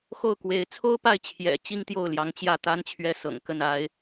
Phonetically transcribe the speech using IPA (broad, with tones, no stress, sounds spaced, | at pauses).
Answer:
x o˥˩ ʊ̯ k w e˧˥ ɪ̯ t͡sʰ o˥ ʊ̯ p a˥˩ ɪ̯ t͡ɕʰ j ɛ̰˨˩ t͡ɕ i˥ ŋ t̪ j o˥˩ ʊ̯ l j ɑ˧˥ ŋ t͡ɕ j ä˥˩ t̪ a˥ n t͡ɕʰ ɥ ɛ˥˩ s ɤ̰˨˩ ŋ k ə˥˩ n a˥ ɪ̯